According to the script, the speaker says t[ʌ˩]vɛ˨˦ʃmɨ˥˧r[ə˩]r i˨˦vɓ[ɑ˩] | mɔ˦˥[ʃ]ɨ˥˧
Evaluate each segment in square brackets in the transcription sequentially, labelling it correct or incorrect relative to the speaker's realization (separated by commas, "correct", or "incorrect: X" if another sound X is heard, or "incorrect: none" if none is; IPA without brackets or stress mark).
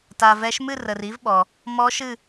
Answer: incorrect: a˩, correct, incorrect: ɔ˩, correct